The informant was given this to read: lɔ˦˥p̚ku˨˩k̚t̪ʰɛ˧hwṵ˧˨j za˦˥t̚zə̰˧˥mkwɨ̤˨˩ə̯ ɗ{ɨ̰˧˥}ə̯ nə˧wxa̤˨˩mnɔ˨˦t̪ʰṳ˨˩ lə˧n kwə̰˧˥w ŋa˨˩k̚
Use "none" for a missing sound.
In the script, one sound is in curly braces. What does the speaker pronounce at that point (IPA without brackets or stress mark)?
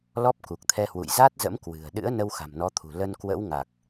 ɨ̰˧˥